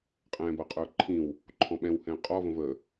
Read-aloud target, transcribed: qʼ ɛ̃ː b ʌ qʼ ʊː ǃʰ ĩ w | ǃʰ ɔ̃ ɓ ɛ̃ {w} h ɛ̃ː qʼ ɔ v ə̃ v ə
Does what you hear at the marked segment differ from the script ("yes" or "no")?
no